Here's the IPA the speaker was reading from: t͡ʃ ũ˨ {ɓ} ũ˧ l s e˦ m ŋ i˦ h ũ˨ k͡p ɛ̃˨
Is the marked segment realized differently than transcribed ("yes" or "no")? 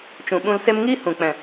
no